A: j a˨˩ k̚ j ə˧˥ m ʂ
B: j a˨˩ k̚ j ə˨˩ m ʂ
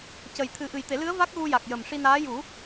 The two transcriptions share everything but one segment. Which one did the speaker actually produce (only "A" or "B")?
B